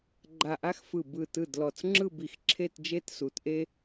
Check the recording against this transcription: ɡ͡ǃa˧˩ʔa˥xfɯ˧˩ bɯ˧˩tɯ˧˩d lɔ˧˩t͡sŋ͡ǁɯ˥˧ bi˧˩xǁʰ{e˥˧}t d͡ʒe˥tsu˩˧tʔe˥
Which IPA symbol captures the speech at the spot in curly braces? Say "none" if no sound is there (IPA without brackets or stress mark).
e˥˧